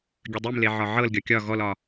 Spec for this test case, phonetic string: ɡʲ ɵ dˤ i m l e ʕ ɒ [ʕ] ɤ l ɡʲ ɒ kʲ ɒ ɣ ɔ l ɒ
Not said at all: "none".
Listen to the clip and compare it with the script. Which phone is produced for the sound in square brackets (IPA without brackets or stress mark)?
ʕ